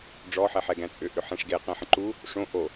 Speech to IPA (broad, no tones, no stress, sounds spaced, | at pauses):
ɖ͡ʐ ɔ ħ ɛ ħ ɛ ɡ æ̃ t͡sʼ ʏ ʔ ʏ ħ ɛ̃ ʂ ɡ e q ɛ̃ ħ ə̃ ǃ u | ʂ õ ʔ o